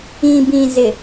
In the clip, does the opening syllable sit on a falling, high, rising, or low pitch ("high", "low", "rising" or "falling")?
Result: low